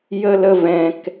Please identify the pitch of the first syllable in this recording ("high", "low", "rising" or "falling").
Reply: high